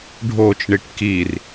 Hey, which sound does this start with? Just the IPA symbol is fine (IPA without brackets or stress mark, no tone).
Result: ɖʱ